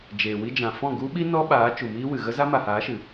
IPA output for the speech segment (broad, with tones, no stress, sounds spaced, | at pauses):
d͡ʒ eː˨ w i˧ d͡ʒ ã˨ f ɔ̃˦˨ ɡ u˦ ɓ i˦ n ɔ˦ ɓ aː˨˦ t͡ʃ u˨ m iː˦ w ɨ˨ ɣ ə˦ z a˦ m a˨ h aː˨˦ ʃ ɨ˨